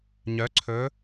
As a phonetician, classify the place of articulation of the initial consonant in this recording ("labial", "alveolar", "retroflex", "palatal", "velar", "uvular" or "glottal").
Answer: palatal